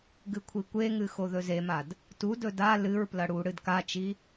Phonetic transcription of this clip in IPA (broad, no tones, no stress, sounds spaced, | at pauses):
ɡ ɨ kʷʰ i kʷ e ŋ ɨ x o ð ɵ z e m a d | t u d ɵ d a l ɨ ɹ p l ɐ ɽ u ɽ ɨ d k a t͡ʃ i